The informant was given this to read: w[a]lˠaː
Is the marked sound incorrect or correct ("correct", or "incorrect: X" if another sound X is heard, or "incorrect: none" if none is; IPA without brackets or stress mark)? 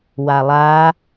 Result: correct